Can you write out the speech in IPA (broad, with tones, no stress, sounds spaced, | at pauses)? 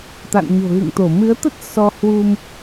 t̪ a̰˧˨ n ɲ o̤˨˩ ɣ ɨ̰˧˨ ŋ t̪ o˧˩ m ɨ˨˦ ə̯ t̪ ə˦˥ t̚ s ɔ˧ h w u˧ m